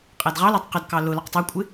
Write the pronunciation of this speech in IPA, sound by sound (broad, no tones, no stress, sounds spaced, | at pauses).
qʼ æ d ʁ ɑ l ɑ tˤ q ə d k ɑ l ʊ l ɒ q tˤ ɑ kʷʼ ɪ